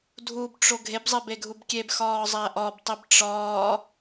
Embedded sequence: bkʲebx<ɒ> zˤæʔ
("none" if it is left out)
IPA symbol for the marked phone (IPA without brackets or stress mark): ɒː